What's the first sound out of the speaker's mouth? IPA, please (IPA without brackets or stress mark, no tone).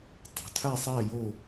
tˤ